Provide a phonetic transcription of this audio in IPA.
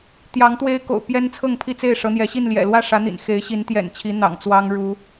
t̪ j ɑ˨˦ ŋ t̪ w e˦ ɪ̯ k o̰˨˩ ʊ̯ p j ɛ˦ n t͡sʰ ɤ˥˨ ŋ pʰ i˥˨ t͡s e˥˨ ɪ̯ ʂ ɤ˨˦ n̪ j ɛ˨˦ ɕ i˥˨ n l j ɛ̰˨˩ l w ä˥˨ ʂ ä˨˦ n̪ ḭ˨˩ n x e˨˦ ɪ̯ ɕ i˨˦ n t̪ j ɛ̰˨˩ n t͡ɕʰ i˨˦ n̪ ɑ̰˨˩ ŋ t͡s w ɑ˦ ŋ ɻ u˨˦

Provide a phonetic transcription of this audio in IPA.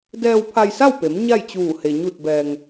d ɛː˧ w pʰ a˧ j s a˥˨ w p e˩˧ m ɲ a˥˨ j t͡ɕ uː˧˩ h e˩ ɲ u˧˩ t̚ b ɛː˩ ŋ

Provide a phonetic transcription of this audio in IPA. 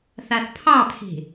θ a θ pʰ ɑ pʰ e̤

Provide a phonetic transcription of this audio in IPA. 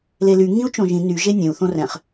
l e l y ŋ ĩ u̯ t͡ʃ õ ʒ ĩ n y ʒ e nʲ ẽ u̯ θ õ r ɛ̃ χ

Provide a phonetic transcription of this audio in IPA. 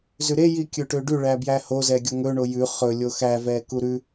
z ʉ ɾ e j i kʲ ɵ ʈ ø ɖ ʉ ɭ æ b j æ h o z ɛ ɡʲ ɔ ŋ ɵ ɳ o j ʉ χ ɵ lʲ o x æ v ɛ k u ɾ ʉ

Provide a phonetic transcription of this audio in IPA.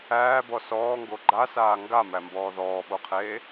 æː b ɔ s ɔː ŋ ɡ o ɡ͡ǃ a s aː ŋ ɡ a m æ m b ɔː ð ɔː ɓ o qʰ eː

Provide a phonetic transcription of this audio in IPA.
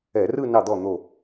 ɛ˧˩˧ r ɯ˥˧ n ɑ˧˩ d̪ ɔ˧˩ n̪ o˧˩

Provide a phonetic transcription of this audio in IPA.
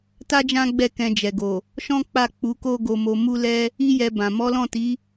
t a˦ d͡ʒ ã˦ ɡ͡b ɛ˦˨ k ɛ̃˧ d͡ʒ ɛ˨ ɡ o˨ | ʃ ɔ̃˦ k͡p a˦˨ k͡p u˨˦ k o˦ ɡ o˧ m o˧ m u˦ l ɛ˦ | i˦ j ɛ˧ b ã˨ m ɔ˨˦ l ɔ̃˦˨ t i˨˦

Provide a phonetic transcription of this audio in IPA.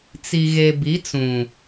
t͡s i˨ ɣ e˨ b i˨˦ t͡s ũ˨

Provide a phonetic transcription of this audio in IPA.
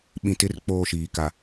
ɓ ĩ˨ t ɪ˦ r k͡p oː˦˨ ʃ iː˨ k a˨

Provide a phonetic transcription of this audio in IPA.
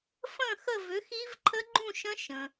f ə̃˥˧ x ə˥˧ v ʏ˨˥ x i˦˥ v ǃʰ ə˦˥ ɡ͡ǃ ũ˥˧ ʃ ə̃˦˥ ʃ ə̃˩

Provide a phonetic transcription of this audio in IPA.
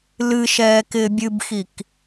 l ɨ ʃ ɛː k ɪː bʲ ɨ b x i k

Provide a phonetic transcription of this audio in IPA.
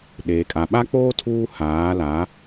ɗ eː˨ kʼ a˨ ɓ a˦ k͡p oː˦ tʰ uː˦ h aː˨˦ l a˨˦

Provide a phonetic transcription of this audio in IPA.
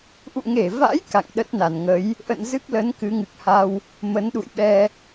ʔ ṵ˧˨ ŋ e˧˩ v a̰˧˥ j k a̰˧˨ ŋ ɗ ə˦˥ t̚ n a˧˩ n ŋ ə˨˦ j | ʔ ə̰˧˨ n z ɨ˦˥ k̚ l ə˨˦ n k ɨ˨˦ ŋ ɨ˨˩ k̚ h a˧ w | m ə˨˦ n ɗ ṵ˧˨ j ɓ ɛ˧

